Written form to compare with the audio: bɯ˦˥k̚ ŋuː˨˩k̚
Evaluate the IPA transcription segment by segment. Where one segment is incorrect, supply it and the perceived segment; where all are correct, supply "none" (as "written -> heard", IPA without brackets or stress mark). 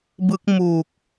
ŋ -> m